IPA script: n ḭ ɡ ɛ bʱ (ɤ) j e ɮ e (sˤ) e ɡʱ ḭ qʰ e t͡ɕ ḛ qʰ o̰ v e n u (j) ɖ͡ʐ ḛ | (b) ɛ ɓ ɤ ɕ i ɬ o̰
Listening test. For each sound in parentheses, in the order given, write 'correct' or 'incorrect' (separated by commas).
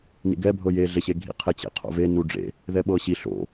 correct, incorrect, incorrect, incorrect